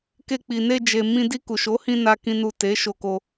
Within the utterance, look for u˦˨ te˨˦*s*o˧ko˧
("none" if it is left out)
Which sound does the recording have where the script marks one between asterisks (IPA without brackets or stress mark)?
ʃ